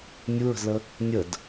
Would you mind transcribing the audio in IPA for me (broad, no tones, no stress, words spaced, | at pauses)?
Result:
nʲuɹə̤zlə | nʲəd